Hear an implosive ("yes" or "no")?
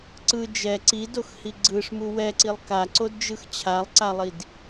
no